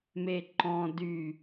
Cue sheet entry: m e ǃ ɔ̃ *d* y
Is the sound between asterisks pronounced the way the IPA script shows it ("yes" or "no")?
yes